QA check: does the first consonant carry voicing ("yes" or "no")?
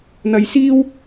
yes